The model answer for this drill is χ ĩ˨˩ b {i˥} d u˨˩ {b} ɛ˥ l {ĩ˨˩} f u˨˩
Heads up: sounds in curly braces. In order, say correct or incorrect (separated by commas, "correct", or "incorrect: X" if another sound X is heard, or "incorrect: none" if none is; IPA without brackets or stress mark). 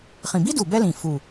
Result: correct, correct, correct